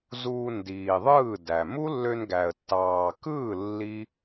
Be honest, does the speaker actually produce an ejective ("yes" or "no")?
no